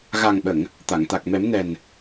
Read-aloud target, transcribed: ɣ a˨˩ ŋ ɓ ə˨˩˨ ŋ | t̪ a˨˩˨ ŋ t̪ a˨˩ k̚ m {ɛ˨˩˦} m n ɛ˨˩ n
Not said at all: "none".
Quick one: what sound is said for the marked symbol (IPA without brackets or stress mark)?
ɛ˨˩˦